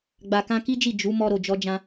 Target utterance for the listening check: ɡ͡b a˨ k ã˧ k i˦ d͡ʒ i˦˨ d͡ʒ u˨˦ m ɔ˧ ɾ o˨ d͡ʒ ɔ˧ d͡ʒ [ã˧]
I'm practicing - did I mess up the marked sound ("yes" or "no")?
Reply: no